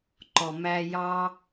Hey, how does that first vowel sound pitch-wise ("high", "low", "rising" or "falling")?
low